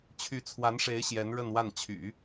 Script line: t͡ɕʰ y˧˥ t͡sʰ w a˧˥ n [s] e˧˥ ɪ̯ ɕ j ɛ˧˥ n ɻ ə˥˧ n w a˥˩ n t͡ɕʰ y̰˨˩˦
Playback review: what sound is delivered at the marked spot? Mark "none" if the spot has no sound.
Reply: ʂ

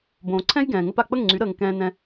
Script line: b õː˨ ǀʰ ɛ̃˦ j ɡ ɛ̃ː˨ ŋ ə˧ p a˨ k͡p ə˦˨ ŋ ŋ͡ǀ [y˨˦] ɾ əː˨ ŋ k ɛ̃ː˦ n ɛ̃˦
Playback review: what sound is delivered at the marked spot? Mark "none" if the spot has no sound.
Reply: y˨˦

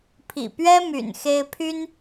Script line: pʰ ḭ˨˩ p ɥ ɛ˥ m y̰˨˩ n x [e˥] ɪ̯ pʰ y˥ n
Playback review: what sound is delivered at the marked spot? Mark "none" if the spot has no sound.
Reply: e˥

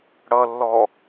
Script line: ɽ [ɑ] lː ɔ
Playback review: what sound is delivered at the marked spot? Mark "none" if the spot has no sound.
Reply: ʌ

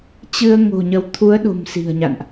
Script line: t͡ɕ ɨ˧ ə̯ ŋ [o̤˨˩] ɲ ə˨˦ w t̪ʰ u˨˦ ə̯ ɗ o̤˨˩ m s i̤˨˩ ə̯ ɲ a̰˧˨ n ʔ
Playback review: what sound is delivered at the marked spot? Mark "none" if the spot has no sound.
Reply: o̤˨˩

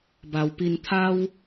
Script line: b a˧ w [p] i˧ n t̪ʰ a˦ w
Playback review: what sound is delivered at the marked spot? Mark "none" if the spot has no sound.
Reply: p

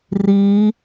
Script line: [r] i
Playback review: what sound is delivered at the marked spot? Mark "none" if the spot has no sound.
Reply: r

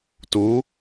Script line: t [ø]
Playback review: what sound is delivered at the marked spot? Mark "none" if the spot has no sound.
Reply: u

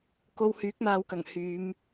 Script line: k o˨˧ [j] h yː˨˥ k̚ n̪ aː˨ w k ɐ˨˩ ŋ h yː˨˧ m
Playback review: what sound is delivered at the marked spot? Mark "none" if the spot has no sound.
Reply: w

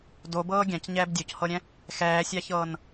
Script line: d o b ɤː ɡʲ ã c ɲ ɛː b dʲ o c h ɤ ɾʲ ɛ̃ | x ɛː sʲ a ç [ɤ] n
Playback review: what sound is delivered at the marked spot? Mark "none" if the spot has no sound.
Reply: ɤː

